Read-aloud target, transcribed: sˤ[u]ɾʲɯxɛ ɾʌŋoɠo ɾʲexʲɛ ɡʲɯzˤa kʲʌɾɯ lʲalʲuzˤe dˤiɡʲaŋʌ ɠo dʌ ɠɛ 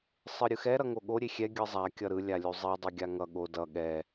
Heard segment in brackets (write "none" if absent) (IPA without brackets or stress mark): ɯ